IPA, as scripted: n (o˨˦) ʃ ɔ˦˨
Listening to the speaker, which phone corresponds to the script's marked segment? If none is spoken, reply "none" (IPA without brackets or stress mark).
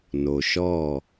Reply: o˨